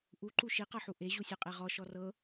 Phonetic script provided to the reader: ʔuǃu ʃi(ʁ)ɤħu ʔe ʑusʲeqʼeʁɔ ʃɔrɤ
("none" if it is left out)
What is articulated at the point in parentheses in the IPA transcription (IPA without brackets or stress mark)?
q